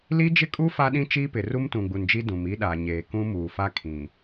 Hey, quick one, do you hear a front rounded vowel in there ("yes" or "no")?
no